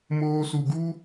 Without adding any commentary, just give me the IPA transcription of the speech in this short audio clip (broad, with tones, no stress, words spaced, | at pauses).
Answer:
moː˧su˨ɡu˦